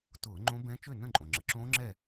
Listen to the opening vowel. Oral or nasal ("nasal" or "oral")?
oral